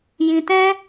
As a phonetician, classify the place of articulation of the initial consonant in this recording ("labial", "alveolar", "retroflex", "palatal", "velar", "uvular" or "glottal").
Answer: palatal